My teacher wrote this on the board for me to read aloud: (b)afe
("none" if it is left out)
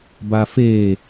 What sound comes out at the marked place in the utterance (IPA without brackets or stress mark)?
b